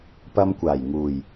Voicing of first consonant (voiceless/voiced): voiceless